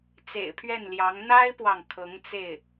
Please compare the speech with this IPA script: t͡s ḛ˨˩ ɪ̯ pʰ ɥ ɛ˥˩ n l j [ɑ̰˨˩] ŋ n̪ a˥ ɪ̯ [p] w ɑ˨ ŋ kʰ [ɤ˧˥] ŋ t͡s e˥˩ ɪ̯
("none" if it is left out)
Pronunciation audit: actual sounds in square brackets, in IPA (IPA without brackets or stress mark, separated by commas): ɑ˧˥, p, ɤ˧˥